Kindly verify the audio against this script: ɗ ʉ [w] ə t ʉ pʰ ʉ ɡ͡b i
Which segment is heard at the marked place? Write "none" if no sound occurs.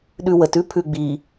w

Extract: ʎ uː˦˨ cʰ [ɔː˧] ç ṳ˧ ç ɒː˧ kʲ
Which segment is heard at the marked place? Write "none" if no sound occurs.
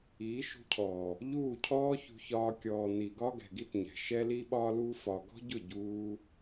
ɔː˦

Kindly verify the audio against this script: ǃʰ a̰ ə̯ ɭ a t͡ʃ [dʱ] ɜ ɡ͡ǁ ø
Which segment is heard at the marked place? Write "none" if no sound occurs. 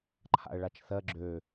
θ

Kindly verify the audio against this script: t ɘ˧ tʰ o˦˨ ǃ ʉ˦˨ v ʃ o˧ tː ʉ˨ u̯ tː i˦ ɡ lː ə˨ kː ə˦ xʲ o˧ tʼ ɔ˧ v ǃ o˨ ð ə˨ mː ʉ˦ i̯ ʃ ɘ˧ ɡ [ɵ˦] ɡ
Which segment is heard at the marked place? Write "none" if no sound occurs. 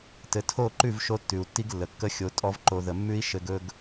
ɵ˦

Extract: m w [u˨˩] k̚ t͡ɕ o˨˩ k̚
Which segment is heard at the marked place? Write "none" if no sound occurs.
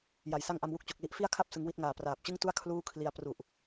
u˥˩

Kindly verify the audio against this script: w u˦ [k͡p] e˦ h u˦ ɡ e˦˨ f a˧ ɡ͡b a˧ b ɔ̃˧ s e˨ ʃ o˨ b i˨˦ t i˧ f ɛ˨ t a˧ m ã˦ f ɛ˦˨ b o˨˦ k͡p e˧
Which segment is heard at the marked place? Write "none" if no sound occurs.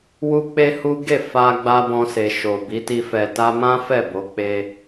k͡p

